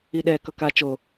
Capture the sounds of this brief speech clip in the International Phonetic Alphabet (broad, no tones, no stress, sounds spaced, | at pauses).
i ɗ ɛ k ʌ k a t͡ʃ o